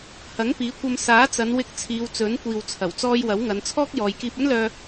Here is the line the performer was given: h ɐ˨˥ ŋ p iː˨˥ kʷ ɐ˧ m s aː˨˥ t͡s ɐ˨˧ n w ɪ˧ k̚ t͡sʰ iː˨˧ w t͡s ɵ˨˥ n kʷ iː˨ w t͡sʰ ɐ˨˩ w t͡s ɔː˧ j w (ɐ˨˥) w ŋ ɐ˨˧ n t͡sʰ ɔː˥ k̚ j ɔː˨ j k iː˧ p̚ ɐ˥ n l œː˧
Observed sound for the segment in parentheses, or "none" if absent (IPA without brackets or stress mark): ɐ˨˥